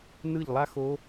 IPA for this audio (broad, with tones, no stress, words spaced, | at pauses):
nɯ˥˩ʎlˠa˥xo˧˥